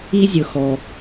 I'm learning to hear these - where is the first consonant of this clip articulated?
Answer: tongue tip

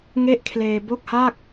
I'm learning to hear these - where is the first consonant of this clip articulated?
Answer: velum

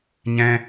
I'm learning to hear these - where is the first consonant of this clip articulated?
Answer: palate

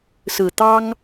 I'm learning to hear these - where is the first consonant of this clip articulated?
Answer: tongue tip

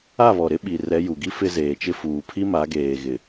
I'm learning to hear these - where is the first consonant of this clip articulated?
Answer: lips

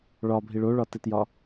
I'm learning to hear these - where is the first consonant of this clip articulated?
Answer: retroflex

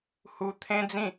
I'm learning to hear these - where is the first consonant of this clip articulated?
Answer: throat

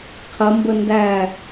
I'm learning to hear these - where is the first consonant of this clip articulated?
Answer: uvula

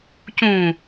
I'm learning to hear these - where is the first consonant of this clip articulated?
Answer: palate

